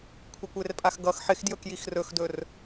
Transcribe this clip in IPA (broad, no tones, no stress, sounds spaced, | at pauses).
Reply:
kʷʰ ɪ kʷ e r pʼ a x ɡ ʌ x ħ ɪ x d j ɵ k j i x r ɵ x d ɵ r